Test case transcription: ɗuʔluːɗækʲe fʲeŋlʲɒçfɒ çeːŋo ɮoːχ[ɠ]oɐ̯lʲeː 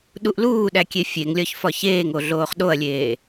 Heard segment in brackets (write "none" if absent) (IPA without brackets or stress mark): ɗ